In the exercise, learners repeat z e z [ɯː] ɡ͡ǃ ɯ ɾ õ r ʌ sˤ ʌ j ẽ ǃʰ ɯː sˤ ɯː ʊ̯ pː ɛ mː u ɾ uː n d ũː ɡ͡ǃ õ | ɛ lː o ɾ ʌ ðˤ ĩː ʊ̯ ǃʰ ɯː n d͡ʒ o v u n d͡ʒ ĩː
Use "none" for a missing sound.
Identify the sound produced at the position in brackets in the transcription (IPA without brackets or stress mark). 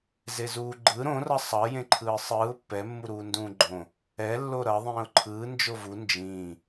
uː